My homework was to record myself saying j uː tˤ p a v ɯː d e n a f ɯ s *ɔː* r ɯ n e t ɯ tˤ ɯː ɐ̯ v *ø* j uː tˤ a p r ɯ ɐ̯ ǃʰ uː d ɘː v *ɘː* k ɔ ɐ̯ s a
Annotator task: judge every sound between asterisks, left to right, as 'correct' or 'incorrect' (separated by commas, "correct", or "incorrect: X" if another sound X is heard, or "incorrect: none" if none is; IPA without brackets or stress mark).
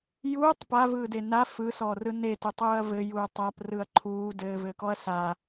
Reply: correct, incorrect: ɘ, correct